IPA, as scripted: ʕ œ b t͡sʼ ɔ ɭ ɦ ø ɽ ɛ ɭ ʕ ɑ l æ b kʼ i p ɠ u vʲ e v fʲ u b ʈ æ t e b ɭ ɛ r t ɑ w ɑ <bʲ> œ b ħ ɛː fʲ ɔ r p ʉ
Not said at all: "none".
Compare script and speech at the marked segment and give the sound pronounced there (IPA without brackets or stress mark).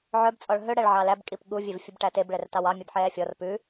mʲ